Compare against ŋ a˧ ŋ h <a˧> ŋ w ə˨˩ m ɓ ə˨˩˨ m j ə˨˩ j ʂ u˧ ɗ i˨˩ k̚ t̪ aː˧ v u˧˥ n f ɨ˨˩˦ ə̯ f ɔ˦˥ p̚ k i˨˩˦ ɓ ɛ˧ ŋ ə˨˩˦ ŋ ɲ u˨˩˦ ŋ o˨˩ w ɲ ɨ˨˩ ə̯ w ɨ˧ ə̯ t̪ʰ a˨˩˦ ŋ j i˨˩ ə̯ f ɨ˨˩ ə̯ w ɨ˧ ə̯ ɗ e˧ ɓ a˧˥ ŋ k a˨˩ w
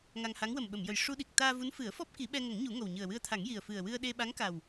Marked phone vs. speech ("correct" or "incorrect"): incorrect